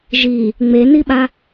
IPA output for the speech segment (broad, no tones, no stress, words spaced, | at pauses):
ʒi | ŋ͡meniɓa